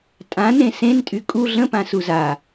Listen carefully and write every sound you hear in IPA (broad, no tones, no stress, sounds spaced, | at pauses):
tʼ ã n ẽ s ẽ n tʼ y kʼ u ɮ ə̃ p ã s u z a